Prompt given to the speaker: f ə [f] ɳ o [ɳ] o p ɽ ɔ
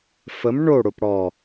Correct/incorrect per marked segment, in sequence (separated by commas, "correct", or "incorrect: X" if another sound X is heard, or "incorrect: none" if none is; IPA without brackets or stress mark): incorrect: m, incorrect: ɽ